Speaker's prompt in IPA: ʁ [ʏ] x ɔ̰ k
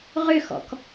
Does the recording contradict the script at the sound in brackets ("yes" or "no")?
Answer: no